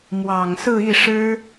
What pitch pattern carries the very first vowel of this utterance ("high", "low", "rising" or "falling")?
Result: low